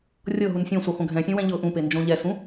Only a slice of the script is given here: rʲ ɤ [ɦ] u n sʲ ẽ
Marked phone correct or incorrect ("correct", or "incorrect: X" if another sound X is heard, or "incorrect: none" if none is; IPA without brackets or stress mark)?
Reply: correct